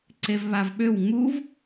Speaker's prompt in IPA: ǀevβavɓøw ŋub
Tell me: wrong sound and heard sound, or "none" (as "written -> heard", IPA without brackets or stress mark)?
b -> v